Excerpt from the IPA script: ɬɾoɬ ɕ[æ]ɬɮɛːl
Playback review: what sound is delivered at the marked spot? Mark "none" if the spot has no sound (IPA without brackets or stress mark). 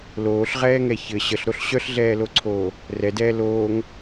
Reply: œ